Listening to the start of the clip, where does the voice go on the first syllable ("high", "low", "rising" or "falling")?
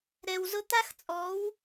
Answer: low